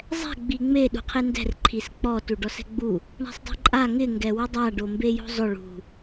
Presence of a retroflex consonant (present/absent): present